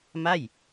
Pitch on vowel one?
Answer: falling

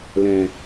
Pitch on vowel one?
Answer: low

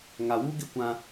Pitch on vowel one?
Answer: low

